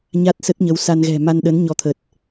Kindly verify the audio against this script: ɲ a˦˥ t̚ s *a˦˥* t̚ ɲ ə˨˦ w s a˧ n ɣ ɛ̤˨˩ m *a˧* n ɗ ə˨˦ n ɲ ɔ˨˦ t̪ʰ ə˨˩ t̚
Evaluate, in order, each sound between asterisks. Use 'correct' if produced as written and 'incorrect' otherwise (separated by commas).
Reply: incorrect, correct